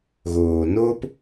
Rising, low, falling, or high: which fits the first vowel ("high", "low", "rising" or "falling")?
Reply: low